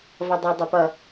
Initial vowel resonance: oral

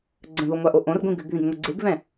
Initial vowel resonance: nasal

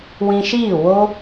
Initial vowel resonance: nasal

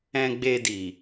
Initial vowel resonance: nasal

